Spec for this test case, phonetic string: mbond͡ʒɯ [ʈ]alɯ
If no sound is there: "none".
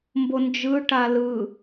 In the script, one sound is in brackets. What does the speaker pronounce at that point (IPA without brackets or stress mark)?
ʈ